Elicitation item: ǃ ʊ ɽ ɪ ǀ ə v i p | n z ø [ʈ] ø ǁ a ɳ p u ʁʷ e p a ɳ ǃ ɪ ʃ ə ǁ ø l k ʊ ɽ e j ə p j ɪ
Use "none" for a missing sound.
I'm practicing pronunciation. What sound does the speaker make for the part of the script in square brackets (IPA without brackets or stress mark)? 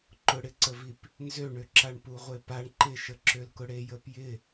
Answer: ɳ